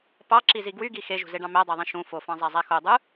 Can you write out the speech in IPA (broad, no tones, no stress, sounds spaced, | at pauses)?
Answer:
p ɑ ǁ i z i ɡ w y ɡ i x e ʒ ṳ z e ɖ ɑ̃ m æ dˤ æ ðˤ ĩ ʃ ũ f o f ɑ̃ zˤ æ zˤ æ x o dˤ ɯ